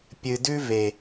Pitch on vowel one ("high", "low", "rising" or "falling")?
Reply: low